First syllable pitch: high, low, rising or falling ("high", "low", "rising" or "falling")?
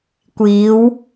rising